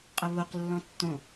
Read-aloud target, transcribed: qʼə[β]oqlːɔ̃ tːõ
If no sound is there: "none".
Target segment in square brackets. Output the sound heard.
β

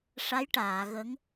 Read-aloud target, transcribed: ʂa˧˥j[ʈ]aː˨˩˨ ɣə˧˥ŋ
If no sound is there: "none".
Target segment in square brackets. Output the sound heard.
ʈ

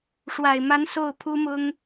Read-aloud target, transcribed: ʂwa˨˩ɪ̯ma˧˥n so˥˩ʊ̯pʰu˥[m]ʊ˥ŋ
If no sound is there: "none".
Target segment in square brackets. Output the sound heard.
m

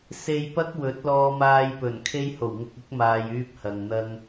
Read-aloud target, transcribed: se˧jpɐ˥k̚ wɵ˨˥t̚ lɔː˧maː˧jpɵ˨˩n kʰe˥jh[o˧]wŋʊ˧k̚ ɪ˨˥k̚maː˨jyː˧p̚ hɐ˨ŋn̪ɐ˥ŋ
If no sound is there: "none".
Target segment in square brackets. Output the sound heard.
o˨˩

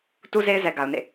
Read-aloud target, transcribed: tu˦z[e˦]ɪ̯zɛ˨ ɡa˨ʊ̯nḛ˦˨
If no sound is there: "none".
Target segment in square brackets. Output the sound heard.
e˦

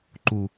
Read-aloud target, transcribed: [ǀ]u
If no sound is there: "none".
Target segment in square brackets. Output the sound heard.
ǃ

